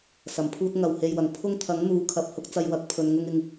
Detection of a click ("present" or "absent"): absent